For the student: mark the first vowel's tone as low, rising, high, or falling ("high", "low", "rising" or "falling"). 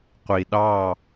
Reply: low